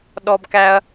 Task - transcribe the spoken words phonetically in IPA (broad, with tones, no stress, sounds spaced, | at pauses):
ɗ ɔ˦ b k æ˦ ɐ̯